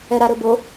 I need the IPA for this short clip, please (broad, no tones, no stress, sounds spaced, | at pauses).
ɛ ɾ a ɾ ɵ b o